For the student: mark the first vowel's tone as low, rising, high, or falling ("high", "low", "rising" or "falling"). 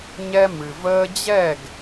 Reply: high